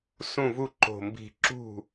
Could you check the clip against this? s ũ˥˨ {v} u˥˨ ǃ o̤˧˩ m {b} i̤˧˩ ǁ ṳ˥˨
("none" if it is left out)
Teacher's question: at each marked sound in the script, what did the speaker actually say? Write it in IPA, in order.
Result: v, b

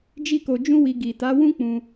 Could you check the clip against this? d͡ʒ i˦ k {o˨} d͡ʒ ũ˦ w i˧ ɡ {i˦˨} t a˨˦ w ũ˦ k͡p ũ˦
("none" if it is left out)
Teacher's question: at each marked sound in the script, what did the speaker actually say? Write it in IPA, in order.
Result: o˧, i˨

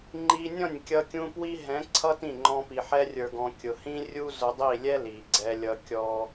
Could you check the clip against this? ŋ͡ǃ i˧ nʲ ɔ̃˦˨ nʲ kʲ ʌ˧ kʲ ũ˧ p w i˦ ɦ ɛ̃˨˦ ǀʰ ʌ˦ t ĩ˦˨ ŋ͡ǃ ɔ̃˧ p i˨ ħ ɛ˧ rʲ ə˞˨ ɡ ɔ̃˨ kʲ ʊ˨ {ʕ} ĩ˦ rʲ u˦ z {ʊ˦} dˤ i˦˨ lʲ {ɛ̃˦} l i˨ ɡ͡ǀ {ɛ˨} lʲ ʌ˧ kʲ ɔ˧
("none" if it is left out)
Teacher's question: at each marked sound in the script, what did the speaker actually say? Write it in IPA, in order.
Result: h, ʊ˧, ɛ˦, ɛ˧

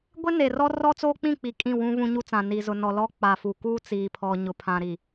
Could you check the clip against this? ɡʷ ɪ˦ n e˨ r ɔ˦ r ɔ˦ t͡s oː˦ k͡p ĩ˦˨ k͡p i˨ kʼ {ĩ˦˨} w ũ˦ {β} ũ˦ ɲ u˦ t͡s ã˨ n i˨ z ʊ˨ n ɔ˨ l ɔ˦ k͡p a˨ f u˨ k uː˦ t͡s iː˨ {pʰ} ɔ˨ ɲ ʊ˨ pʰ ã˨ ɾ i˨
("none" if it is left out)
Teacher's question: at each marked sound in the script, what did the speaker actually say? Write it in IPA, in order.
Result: ĩ˦˨, β, pʰ

